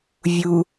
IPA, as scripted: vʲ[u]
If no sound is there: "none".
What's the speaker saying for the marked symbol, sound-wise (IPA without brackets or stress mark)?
u